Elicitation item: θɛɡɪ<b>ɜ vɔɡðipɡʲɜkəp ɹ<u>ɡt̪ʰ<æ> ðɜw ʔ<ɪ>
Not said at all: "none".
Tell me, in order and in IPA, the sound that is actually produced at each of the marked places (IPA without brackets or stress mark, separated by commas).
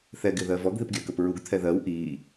ð, u, ɛ, i